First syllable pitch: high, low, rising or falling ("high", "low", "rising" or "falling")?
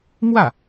falling